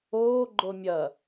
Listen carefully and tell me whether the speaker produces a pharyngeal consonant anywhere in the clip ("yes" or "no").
no